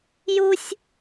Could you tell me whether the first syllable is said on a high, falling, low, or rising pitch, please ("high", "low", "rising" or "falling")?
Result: high